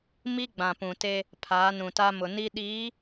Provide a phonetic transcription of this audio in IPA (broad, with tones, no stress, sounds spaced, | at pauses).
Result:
m i˦ ɡ͡b ã˨ p ũ˨ t e˦ | pʰ aː˨˦ n ũ˨ t a˦ m ʊ˨ n i˦ ɗ iː˨˦